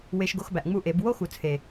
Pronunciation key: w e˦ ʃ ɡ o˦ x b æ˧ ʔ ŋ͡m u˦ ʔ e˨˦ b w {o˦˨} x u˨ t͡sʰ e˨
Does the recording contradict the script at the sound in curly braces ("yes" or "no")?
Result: yes